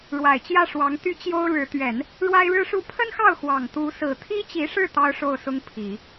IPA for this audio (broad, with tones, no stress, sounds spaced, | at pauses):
ɻ w a˨˩ ɪ̯ t͡ɕ j ä˥˩ ʂ w ɑ˧˥ ŋ t̪ y˧˥ t͡ɕ j o˥ ʊ̯ ɻ ɻ̩˧˥ t̪ ɥ ɛ˨˩˦ n | ɻ w a˥ ɪ̯ ɻ ɻ̩˥ ʂ u˥ pʰ ə˥ n x ɑ˥˩ ʊ̯ x w ɑ˨˩ ŋ t̪ u˧˥ s ɹ̩˨˩ t̪ʰ i˥ t͡ɕ i˧˥ ʂ ɻ̩˥˩ t̪ ɑ˥ ʊ̯ ʂ o˥˩ ʊ̯ s ʊ˥ ŋ pʰ i˨˩˦